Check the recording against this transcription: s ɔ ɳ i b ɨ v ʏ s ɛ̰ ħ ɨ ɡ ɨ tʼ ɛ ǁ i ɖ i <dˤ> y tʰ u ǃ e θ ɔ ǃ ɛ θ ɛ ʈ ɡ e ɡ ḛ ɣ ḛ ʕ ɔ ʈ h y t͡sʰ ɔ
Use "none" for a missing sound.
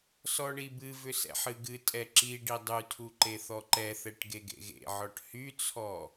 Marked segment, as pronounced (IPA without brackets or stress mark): dˤ